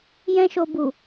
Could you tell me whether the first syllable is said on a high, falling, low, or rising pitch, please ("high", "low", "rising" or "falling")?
high